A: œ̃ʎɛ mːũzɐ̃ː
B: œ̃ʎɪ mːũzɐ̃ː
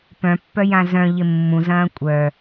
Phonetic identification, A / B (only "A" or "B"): B